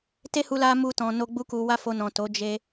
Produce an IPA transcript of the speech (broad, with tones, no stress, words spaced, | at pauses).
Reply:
te˦hu˧ la˦ mu˧tɔ̃˨no˧ ɡ͡bu˧ku˨wa˧ fo˧nɔ̃˨to˨˦ d͡ʒe˧